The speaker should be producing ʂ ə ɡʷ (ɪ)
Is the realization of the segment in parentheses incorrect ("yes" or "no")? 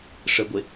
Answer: no